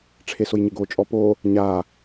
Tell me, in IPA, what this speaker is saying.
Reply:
ʈ͡ʂʰesʊjɲɪɡo t͡ʃʼɔpo | ɲa

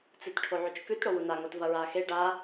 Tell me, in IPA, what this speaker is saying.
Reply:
t͡sɨtʈʰoʕʉt͡ʃkʉt ɽowuna ŋotvɐɹaxe ɖa

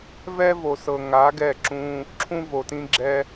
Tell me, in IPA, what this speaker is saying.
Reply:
vɛ˦vo˨ sɤ˨ ŋa˨˦ ɡɛ˦˨ǁũ˦ | ǁʰũ˦vo˨tĩ˦ ɡ͡ǁɛ˦

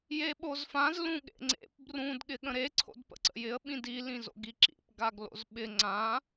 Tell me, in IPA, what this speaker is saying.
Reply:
jeɓozfãz lũɠḛŋ͡ǀḛp brũd ɠɪɠə̃ɾe ǀʰo̰dpə̰ǀə̰jɪə̯ ɓĩdi lĩzo̰ɡiǁḭp ɡaɡlo̰zɓɪ ŋ͡ǀã

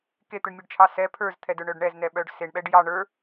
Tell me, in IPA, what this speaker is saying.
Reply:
ket̪ɯɳmʲɯɖt͡ʃʰɑ sɛ pʰə˞zt̪ʰɛdə˞ ɳœɖɳɛznɛɓœɖ seɳɓɛɖ jɑ ɳə˞

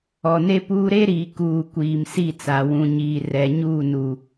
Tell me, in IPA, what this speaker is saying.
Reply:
ɔ˨ne˦ puː˦ ɾe˦ɾiː˨ kuː˨ kʷiː˨m si˦˨t͡sa˨wũ˨ɲiː˨ rɛ˨ɲuː˦˨nu˨

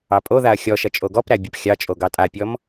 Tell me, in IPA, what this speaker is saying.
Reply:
ɑpʼoðaɐ̯ xʲɔʃɐ t͡ʃʼoɡɔpɾæ bʲɐpxʲɑt͡ʃʼo ɡɑtʼapʲɔm

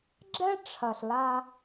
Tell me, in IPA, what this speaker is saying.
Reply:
ɡ͡ǁɛ˦ʈ͡ʂʰɐ˨ɬ la˧

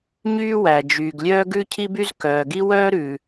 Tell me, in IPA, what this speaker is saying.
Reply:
ɲyː˥ wæ˩d͡ʒyː˩ɡ lʲœː˥ɡʉ˥ cʰi˥by˥z kœː˩ɡi˥ wœː˥ɾʉ˩

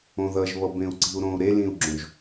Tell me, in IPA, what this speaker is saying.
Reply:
õðʌʒβʌ bẽu̯ǀi̤u̯ɾõu̯ ɾelĩu̯ɡ͡ǁõʒ

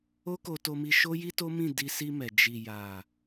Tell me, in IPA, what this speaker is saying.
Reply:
o˦ko˧to˧mi˧ ʃo˦ji˦to˦mĩ˦˨ di˧si˧ mɛ˨ d͡ʒi˨ja˨

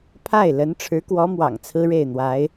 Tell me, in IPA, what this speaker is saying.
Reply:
pʰa˥˩ɪ̯lə˧˥n ʈ͡ʂʰɻ̩˧˥kwɔ˧˥ mwɑ̰˨˩ŋt͡sʰɹ̩˥ɻe˥˩ɪ̯n̪wa˧˥ɪ̯

